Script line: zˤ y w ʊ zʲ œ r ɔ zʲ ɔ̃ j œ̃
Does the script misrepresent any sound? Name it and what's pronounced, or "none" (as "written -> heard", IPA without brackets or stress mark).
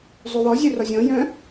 ʊ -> ɔ